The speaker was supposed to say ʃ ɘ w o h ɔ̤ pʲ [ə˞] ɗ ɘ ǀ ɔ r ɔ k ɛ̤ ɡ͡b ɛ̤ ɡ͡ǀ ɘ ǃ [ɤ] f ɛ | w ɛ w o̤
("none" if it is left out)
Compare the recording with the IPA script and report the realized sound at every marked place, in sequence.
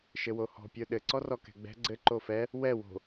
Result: ə˞, o

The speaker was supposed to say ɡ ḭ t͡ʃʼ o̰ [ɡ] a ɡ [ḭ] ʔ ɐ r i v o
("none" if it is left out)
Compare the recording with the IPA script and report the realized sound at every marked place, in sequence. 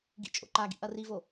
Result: ǃ, ḭ

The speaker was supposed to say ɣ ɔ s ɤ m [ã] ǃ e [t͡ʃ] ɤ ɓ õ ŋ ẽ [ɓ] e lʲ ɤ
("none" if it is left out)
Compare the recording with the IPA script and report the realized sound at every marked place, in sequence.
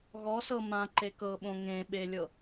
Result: ã, k, ɓ

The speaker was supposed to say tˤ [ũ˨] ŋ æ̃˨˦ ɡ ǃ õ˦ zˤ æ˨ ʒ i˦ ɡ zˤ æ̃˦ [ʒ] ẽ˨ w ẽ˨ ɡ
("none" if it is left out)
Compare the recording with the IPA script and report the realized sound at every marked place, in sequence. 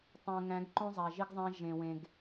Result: õ˨, ʒ

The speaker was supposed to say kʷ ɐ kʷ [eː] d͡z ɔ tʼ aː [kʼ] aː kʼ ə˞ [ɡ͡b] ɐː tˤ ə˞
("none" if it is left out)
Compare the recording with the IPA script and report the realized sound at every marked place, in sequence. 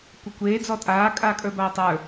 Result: eː, kʼ, b

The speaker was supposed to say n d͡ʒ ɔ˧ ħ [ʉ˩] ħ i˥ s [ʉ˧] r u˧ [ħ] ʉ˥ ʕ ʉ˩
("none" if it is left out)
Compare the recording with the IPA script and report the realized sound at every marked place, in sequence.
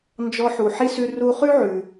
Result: u˩, ʉ˧, χ

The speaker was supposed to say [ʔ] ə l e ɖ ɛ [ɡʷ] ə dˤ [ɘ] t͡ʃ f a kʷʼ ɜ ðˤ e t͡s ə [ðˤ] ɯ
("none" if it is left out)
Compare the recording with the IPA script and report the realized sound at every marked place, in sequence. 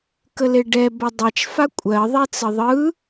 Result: k, b, e, ðˤ

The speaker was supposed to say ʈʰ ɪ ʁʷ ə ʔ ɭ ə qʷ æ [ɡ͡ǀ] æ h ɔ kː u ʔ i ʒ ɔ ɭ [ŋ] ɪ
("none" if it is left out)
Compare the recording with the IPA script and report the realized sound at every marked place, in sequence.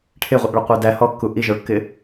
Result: d, kː

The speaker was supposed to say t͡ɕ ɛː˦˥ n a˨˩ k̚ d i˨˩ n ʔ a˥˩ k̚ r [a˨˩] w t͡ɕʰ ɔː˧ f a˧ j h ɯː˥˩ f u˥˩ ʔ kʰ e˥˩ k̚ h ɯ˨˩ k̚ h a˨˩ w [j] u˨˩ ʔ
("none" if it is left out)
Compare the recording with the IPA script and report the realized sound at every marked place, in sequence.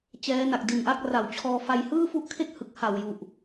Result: a˨˩, j

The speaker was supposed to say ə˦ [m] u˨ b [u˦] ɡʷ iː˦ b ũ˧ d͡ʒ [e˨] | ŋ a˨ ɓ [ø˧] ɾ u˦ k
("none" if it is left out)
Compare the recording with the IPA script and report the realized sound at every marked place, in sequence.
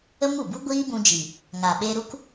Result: m, u˦, i˨, e˧

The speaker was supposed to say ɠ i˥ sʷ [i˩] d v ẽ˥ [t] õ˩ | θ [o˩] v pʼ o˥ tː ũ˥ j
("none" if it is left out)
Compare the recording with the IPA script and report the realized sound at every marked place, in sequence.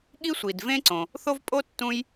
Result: i˩, ǀ, o˥

